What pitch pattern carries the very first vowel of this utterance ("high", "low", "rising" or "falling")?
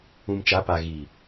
low